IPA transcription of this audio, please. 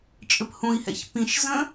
t͡ʃʼ ɘ p h ũ i̯ h ɛ̰ ç p ĩ ʃ z ə̃

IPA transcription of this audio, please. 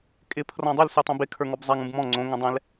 kʼ ɪ pʰ r ɔ̃ dˤ y l s y tˤ õ b ɪ kʰ ə˞ ŋ ɔ b zˤ ɛ ŋ ũ b m ɔ̃ ŋ͡ǀ õ ŋ õ dˤ ɛ̃ l

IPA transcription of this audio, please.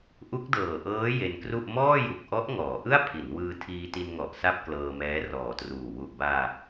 ʔ u˦˥ k̚ d ɤː˨˩ ʔ ɤː˦˥ j e˧ n k r u˥˩ ʔ m ɔː˥˩ j u˨˩ k̚ ʔ ɔ˦˥ ʔ ŋ ɔː˩˦ ʔ ɯ˥˩ a̯ pʰ i˩˦ n w ɯː˧ tʰ iː˧ t i˧ n ŋ ɔ˨˩ ʔ s a˥˩ p̚ k l ɤː˧ m ɛː˦˥ r ɔː˨˩ t r uː˨˩ w u˨˩ ʔ b aː˧

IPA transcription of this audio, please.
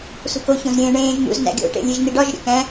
s ṳ k o ç õ z ɾʲ ẽː ɳ ẽː ʒ n̪ ṵ z n æ̰ ɡʲ o̰ ʈ ḛ lʲ e ʒ n̪ i ɖ ɒ ʒ ɾʲ ṵ k æ̃

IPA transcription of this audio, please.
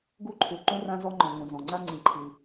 ɡ u˥ ǃʰ u˩ ǃ ũ˥ r ã˥ z ɔ˥ ŋ͡ǃ ɔ̃˩ ŋ ũ˩ z ɔ̃˩ ŋ͡ǀ a˥ ŋ͡ǀ ĩ˩ ǃʰ i˩

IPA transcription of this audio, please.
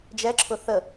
d͡ʒ ɛ ǁʰ ʊ θ ə

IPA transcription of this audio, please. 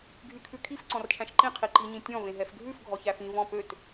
ɡʱ y kʰ ʉ kʰ i f ǀ ɔ̃ r t͡ʃʰ æ̃ ʃ ǃ ĩ qʰ i ǃ i ɲ ĩ tʲ ɔ̃ v ẽ ɦ ɛ f ɡʱ ʉ f ɡʱ ɔ ç æ f ĩ v ɔ̃ p ø t

